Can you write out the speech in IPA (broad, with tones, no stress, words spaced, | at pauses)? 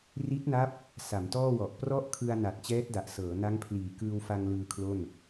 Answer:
ri˦˥t̚na˦˥p̚ | sa˩˦mtɔː˥˩wɔ˨˩ʔ prɔ˥˩ʔkʰɯ˧a̯na˨˩t̚ t͡ɕɛː˦˥t̚da˨˩ʔsɤː˩˦ na˦˥ŋpʰliː˨˩ kɯː˧wfa˧ŋ lɯː˧kʰlo˥˩n